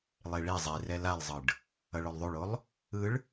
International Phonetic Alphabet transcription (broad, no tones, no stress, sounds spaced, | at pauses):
lˠ e ɭ i zˤ i r ɛ l a lˠ zˤ ɯ ɖ | ʌ ɭ o lˠ ðˤ u ɭ o lˠ | ɯ ɭ